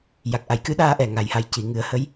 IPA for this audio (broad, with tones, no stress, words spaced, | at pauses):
ja˨˩k̚ ʔa˨˩˨jkɨ˧˥ɗaː˧ ʔɛ˨˩ ŋa˨˩jha˧j ci˨˩˨ŋɨ˨˩˦ə̯hə˧˥j